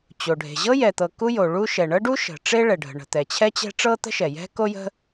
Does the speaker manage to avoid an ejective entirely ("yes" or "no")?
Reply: yes